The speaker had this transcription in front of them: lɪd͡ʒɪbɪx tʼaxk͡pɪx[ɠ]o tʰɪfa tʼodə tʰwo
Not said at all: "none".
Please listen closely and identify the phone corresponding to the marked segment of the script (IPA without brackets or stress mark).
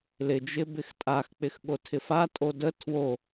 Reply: ɠ